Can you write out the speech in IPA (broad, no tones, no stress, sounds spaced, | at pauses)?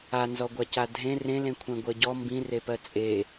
a n z ɔ ɡʷ a c a dʱ ẽ r ẽ l ẽ kʷʰ ẽ ɡʷ ɜ ɟ ɔ m b ĩ r e p ɜ t͡sʼ e